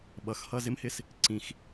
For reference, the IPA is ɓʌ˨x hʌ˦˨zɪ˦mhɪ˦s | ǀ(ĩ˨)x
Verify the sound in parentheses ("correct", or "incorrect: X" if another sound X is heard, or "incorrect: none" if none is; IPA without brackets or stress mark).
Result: correct